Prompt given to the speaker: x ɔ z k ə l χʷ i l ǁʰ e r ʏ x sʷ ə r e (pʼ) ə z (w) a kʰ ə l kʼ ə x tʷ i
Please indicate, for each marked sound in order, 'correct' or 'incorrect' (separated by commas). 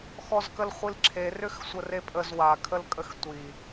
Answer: correct, correct